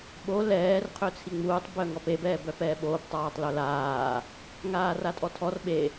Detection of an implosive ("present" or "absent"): present